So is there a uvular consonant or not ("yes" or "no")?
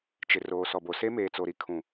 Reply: no